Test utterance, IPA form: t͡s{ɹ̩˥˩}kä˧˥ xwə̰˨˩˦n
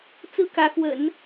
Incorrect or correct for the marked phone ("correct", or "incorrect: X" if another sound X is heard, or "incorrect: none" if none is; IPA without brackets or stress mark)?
correct